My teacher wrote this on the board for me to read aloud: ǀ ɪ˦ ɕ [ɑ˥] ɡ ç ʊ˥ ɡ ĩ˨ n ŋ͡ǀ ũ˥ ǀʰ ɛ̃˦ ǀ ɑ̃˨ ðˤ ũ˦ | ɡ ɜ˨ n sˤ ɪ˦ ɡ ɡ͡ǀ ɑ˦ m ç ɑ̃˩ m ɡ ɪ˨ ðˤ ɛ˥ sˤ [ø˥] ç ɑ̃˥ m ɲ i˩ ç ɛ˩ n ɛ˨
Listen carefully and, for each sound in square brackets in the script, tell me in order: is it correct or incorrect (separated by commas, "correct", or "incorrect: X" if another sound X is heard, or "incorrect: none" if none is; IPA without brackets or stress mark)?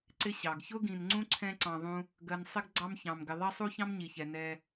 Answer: incorrect: ɑ˩, incorrect: u˥